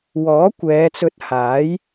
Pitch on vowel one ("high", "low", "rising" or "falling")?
rising